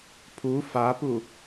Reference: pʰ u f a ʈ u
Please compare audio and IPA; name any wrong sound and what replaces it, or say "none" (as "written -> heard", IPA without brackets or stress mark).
ʈ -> p